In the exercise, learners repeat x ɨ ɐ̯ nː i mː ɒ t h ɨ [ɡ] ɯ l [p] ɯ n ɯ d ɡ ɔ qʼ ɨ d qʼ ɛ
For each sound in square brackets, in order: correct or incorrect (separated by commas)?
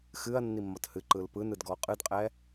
incorrect, correct